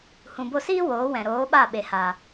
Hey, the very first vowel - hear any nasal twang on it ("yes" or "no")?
yes